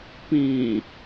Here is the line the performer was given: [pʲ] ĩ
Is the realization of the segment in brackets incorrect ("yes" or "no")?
yes